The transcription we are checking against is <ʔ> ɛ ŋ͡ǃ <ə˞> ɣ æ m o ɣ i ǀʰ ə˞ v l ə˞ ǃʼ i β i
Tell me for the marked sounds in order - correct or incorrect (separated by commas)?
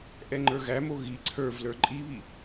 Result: correct, correct